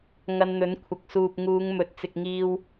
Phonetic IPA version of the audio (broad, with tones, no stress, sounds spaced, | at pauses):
ŋ ɐ˧ n n̪ ɵ˨˥ n kʷʰ ɐ˨˥ k̚ s uː˨ p̚ ŋ uː˨˧ ŋ m ɵ˨ t̚ t͡s ɪ˨ k̚ ŋ iː˧ w